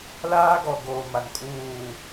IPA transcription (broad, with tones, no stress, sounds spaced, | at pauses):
l aː˦ ɡ ɔ˨ ɡ oː˨ m a˨ n kʼ uː˦˨